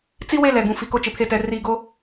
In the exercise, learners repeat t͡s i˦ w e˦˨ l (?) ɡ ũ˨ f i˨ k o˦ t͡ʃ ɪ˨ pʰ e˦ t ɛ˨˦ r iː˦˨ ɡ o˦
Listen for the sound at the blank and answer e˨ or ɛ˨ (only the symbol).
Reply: ɛ˨